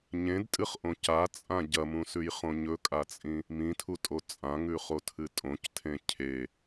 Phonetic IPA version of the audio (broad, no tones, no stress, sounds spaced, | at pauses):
ɲ ẽ d tʼ ɨ χ ʔ õ c a t͡sʼ ã ɟ ɐ m ũ s ʉ j χ õ ɲ ɵ kʼ a t͡sʼ ĩ | m ĩ tʰ u tʼ o t͡sʼ ã ŋ ʉ χ o tʰ ɨ tʼ õ c tʰ ẽ cʰ e